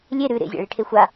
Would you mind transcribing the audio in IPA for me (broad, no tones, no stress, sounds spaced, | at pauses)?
lʲ e ɾ ʉ ɾ ḛ zʲ a̰ ɭ i ʈʰ e xʷ a